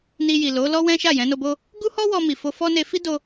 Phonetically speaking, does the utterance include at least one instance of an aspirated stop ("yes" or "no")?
no